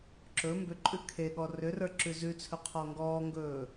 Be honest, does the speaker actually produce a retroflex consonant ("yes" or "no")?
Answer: no